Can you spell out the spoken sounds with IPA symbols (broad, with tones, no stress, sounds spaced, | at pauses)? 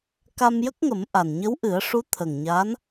k a˧ m j ə˦˥ k̚ ŋ ə˨˩˦ m ʔ a˨˩ n ɲ ə˧˥ w ʔ ɨ˨˩˦ ə̯ ʂ u˧˥ t̪ʰ ə˨˩ ŋ ɲ a˧˥ n